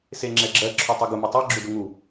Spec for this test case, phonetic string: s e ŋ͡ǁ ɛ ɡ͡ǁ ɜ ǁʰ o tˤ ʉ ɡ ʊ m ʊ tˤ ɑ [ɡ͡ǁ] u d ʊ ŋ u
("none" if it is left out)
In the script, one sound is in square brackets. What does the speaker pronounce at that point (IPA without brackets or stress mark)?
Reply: ɡ͡ǁ